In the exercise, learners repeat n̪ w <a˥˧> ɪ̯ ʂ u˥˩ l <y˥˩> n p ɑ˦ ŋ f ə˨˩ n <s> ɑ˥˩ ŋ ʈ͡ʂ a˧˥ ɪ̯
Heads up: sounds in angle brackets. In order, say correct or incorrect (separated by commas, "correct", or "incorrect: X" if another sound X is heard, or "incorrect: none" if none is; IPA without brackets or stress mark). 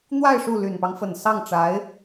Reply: correct, incorrect: y˨˩, correct